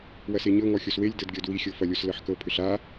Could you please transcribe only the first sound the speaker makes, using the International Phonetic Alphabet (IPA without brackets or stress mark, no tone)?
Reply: w